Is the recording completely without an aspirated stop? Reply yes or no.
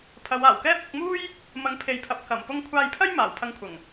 no